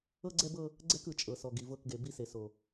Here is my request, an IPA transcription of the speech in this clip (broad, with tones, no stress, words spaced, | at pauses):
ɤ˦ɡ͡ǀɛ˦bɤ˦ | ɡ͡ǀɛ˦kɯ˨ t͡ʃʼɤ˨sɔ˨ ɡi˨vɤ˦˨kɡe˨ bi˦se˨ so˨